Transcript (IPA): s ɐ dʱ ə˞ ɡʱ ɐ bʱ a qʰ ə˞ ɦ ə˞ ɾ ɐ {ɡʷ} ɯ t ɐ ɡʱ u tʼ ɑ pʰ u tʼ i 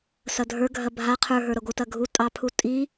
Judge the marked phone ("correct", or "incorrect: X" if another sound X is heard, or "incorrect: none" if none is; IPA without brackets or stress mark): correct